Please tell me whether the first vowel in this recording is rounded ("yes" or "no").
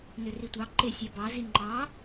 yes